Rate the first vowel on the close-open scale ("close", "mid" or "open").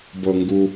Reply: mid